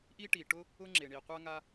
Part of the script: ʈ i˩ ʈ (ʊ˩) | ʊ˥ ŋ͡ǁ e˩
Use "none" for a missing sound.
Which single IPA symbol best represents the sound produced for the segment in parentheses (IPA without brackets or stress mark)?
ʊ˥